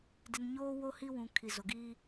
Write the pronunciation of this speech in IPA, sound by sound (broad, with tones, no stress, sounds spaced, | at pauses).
d ɪ˨ n ɲ oː˦ w o˦ h i˦ w ũ˨ kʰ i˨ z o˨ ɡ iː˦